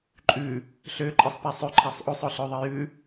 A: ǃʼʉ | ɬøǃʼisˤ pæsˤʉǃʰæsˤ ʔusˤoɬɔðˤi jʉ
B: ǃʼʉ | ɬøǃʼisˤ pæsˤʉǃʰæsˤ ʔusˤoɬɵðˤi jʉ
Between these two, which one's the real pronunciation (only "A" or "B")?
B